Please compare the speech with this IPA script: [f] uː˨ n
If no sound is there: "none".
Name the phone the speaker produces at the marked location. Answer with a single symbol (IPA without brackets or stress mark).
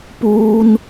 p